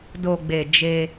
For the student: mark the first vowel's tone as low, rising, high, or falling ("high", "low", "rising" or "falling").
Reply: low